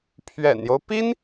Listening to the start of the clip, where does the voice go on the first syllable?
low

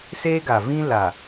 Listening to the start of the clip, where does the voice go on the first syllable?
high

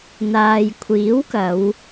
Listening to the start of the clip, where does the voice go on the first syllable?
low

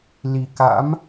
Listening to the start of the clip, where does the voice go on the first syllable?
low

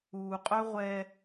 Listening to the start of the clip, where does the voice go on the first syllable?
low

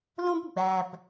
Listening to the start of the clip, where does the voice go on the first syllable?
high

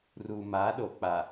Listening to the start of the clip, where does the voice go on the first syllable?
low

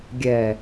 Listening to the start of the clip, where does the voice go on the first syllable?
low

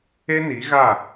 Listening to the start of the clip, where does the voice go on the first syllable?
high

